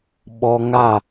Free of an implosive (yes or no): no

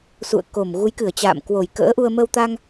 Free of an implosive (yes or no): yes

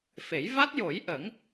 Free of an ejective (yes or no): yes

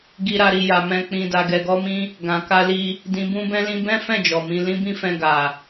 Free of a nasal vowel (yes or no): no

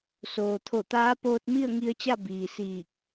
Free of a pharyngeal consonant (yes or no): yes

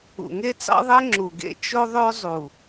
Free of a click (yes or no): no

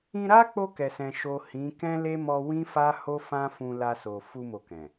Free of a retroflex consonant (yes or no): yes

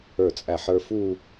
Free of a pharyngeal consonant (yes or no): no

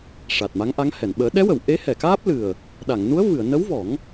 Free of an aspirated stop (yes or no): yes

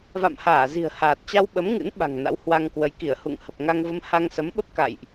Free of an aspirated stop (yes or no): yes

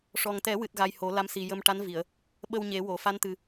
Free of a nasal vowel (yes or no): yes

